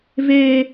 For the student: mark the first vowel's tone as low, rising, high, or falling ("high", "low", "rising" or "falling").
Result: high